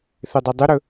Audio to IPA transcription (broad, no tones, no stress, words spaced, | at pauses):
θedˤedˤɨɾɵ